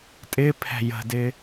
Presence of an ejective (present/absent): present